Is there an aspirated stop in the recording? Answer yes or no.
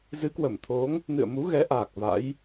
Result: yes